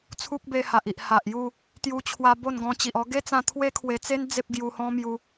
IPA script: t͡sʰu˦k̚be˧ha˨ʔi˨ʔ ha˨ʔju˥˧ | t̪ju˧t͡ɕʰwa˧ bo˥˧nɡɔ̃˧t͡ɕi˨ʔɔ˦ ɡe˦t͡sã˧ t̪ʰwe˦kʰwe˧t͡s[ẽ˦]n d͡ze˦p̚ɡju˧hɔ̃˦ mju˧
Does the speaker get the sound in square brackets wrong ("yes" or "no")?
yes